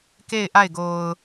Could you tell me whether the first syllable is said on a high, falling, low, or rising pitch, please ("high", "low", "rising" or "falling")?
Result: falling